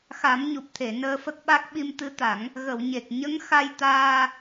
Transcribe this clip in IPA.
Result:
x a˨˩˦ m ɲ u˨˩ p̚ t̪ʰ e˨˩˨ n əː˧ f ə˦˥ k̚ ɓ a˦˥ k̚ ɓ i˧ m t̪ ɨ˧˥ t̪ a˨˩˦ ŋ | ɣ ə˨˩˨ w ɲ e˨˩ k̚ ɲ ə˧˥ ŋ x a˧ j t̪ aː˧

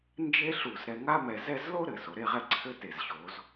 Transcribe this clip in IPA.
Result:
n d͡ʒ e˥ ɬ u˧˩ z ɾ ɛ˧ ŋ a˥ m ɛ˧ z ɛ˥˧ z l o˥ ɾ ɘ˩˧ s o˩˧ ɾ e˥˧ ʁ ɛ˥˧ ǀʰ ɘ˥ t e˧˩ z ɕ o˩˧ z

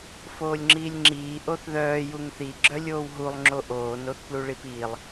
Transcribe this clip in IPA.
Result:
f oː lʲ ŋ͡ǁ iː lʲ ŋ͡ǁ iː ʔ o θ ð œː j u ŋ θ i ɡ͡ǁ œ lʲ oː w ɦ u lˠ ŋ͡ǁ o ʔ oː n o θ p l u ɭ i p iː lˠ

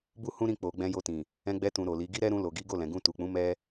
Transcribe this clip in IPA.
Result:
b u˦ h ũ˦ ɾ ĩ˦˨ k͡p o˨ ɡ͡b ɛ̃˧ j o˧ t ĩ˨ | ɛ̃˧ ɡ͡b ɛ˧ t ũ˨ ɾ o˨ l i˨˦ ɡ i˦ ɾ ɛ˦ ɾ ũ˧ l o˨ ɡ i˨˦ ɡ o˦˨ l ɛ̃˨ ɡ ũ˧ t u˨ k͡p ũ˨˦ m ɛ˦

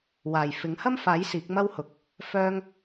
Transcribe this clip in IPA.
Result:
w aː˨˩ j f ɪ˨˥ ŋ h ɐ˥ m f aː˨˥ j s iː˨˥ k̚ m ɐ˥ w h ʊ˨ k̚ | f œː˥ ŋ

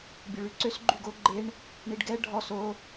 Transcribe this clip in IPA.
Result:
bʲ ø ɭ y ǀ ø s ɡ͡ǃ y ɡ o ɡ͡ǃ e ɳ | ɳ i ɖ ɡ ɛ ɖʱ ɔ s o

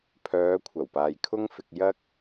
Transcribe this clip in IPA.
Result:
pʰ œː˨˧ kʷʰ ɐ˨˩ w p aː˨ j kʰ ʊ˥ ŋ f ɪ˧ k̚ j ɐ˥ k̚

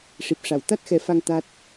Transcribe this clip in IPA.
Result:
ʂ i˨˩ p̚ ʂ a˨˩˨ w t̪ a˦˥ t̚ x ɛ˨˩˦ f a˧ ŋ t̪ a˦˥ t̚

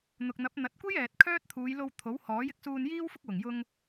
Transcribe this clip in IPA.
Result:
n̪ ʊ˨ k̚ n̪ ɐ˨˥ p̚ n̪ ɐ˨˥ t̚ kʷ e˥ j ɛː˨ t̚ kʰ œː˥ t̚ t̪ʰ uː˨˧ j l o˧ w t̪ʰ o˨˥ w h ɔː˨˥ j ɪ˨˥ k̚ s uː˧ n j iː˥ w f ʊ˥ k̚ w ʊ˨˩ ŋ j ʊ˧ ŋ

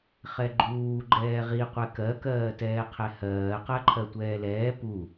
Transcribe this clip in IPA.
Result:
χ ɛ ɡ͡ǃ uː ɡ͡ǃ ɛː ʁ i qʷ ɛ k ɜ k ɜː t ɛː qʰ ɛ h ɜː q ɜ ǃʰ ɜ tʷ ɛː l ɛː p u

